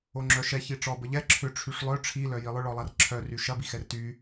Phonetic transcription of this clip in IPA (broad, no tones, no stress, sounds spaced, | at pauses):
o ŋ͡ǁ œ ʃ ɛ ç i ʈ͡ʂ ɔ b ə ʎ ɛ ǁʰ ʏ ʈ͡ʂʰ y ʂ lˠ œ ʈ͡ʂʰ i l œ j i lˠ ʊ ɭ ɔ lˠ a r ǁʰ œ r y ʃ ɐ b i x ɛ r t y